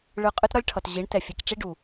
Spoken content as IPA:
ɭ ɯ˨ qʼ ɯ˦ t ɾ ʌ˦ lʲ ʈʰ ʌ˨ t ʑ i˨˦ ɳ t ɛ˨ fʲ e˨ k ʈ͡ʂ i˦ ɖ u˨

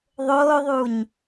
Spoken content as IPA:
ðˤ oː ðˤ u ɲ

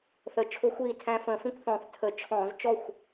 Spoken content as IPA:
θ ə˧˩˧ t͡ʃʰ ʊː˦ xʷ iː˥˩ tʰ æ̃˦ f ə̃ː˧˩˧ f ĩ˥˩ kʷ θ ɔ̃ː˧˩˧ θ tʰ ə˧˩˧ t͡ʃʰ ɔ̃ː˧˩˧ z t͡ʃ ɔ˥˩ xʷ

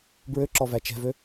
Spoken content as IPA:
b ɹ ø ǁ ɔ v æ t͡ʃ ɛ̤ v ø

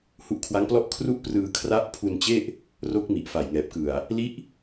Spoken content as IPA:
h u˦˥ ʔ kʰ w a˦˥ ŋ p l ɔ˥˩ ʔ kʰ r u˥˩ ʔ p r ɯː˧ kʰ r a˦˥ ʔ pʰ u˧ n t͡ɕ e˥˩ ʔ | r o˦˥ k̚ m i˨˩ ʔ f a˨˩ j ŋ ɛː˨˩ p̚ k ɯ˨˩ a̯ | l i˦˥ ʔ

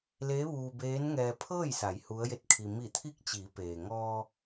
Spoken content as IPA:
l eː˧˥ ʋ uː˧ b eː˧˥ n ŋ ɛː˧ pʰ ɤː˥˨ j s a˩˧ j h u˧˥ ə̯ j e˥˨ t̚ kʰ i˧ m i˧˩ t̪ʰ i˧˥ k̚ t͡ɕ i˩˧ p eː˩ ŋ ɔː˧

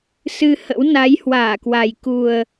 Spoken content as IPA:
s ɨ˧ h ə̰˧˥ w n a˨˦ j h w aː˧˩ k w a˨˩ j k u˨˩ ə̯

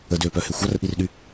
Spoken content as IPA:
ə d ø p œ h e xʷ a r ʔ i r ɗ y

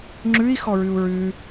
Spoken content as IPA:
ŋ͡ǁ ʉ i̯ x ɔ ɹ ʉ u̯ ɹ ʉ

